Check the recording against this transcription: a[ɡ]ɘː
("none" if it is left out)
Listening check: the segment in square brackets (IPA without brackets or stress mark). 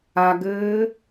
ɡ